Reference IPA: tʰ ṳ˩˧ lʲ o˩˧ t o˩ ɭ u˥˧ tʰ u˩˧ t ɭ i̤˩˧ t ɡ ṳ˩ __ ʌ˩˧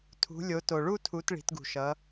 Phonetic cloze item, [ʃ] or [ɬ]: ʃ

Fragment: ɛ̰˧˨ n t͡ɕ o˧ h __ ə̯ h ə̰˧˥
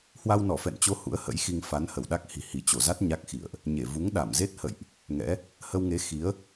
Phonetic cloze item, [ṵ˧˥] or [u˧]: ṵ˧˥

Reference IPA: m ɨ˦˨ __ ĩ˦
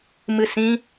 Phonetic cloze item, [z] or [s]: s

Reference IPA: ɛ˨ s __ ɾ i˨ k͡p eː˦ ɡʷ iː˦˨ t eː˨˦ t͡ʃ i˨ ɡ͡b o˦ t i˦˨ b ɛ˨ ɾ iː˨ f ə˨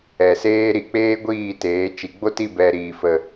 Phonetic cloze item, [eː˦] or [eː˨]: eː˦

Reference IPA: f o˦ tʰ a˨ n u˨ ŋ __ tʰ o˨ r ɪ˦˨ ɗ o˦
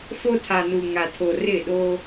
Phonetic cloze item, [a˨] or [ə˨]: a˨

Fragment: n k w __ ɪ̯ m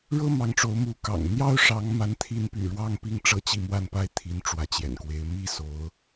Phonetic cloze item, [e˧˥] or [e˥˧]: e˧˥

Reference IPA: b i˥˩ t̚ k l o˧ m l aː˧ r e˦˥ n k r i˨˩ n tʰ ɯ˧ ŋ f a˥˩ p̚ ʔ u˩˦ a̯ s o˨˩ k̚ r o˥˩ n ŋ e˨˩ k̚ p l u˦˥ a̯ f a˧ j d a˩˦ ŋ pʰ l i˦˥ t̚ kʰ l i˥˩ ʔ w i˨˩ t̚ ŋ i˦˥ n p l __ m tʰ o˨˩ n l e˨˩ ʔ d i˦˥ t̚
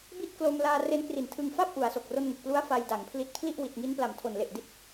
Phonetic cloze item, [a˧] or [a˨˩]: a˨˩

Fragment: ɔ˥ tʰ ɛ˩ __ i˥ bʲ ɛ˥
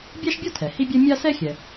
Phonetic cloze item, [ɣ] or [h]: h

